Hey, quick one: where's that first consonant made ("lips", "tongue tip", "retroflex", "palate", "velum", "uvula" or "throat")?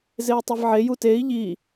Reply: tongue tip